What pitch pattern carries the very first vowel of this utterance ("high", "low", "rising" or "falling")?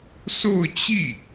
falling